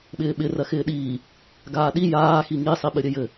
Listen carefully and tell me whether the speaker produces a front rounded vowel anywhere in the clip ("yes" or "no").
no